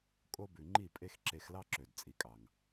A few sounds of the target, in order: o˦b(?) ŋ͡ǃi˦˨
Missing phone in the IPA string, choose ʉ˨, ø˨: ʉ˨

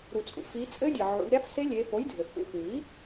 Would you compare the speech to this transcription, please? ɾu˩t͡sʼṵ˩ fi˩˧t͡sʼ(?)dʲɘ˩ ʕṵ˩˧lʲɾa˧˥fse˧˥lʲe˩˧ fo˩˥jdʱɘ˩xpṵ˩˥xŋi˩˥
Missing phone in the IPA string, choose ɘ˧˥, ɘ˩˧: ɘ˧˥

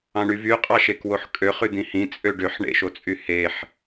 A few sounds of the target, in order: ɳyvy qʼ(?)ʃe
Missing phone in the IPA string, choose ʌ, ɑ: ɑ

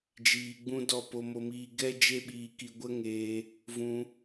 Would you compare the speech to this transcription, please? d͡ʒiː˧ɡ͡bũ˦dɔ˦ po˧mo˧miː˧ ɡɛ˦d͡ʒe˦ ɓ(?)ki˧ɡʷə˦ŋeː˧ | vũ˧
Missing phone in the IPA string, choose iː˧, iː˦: iː˧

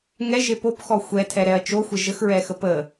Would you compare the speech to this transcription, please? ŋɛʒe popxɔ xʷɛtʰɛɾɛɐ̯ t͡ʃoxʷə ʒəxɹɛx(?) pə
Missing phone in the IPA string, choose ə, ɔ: ə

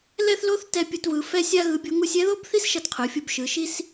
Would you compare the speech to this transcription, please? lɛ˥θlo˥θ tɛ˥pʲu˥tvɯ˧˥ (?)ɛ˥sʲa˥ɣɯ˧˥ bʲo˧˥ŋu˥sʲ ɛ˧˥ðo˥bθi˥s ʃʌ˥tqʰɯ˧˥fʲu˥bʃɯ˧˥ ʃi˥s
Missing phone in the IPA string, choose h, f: f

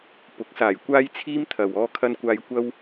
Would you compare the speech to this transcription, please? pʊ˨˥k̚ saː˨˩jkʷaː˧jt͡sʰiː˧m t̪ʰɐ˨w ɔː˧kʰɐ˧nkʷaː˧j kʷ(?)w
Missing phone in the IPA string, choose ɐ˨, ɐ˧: ɐ˧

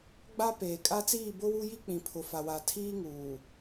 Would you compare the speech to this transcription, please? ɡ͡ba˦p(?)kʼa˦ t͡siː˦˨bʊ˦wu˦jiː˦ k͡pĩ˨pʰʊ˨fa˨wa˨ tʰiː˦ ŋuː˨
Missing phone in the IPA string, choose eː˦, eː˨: eː˨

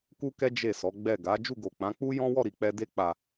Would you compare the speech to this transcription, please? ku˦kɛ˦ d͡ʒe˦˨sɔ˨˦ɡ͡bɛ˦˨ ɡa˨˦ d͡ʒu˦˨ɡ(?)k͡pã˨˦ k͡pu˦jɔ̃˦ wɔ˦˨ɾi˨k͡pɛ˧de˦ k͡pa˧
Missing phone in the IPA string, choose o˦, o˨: o˨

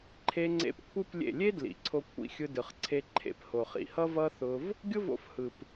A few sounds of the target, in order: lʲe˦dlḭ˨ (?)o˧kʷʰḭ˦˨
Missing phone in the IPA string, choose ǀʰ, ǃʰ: ǀʰ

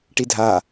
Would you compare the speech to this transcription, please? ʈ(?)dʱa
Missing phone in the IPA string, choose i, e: i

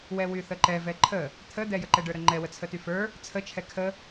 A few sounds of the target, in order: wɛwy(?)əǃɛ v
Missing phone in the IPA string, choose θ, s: θ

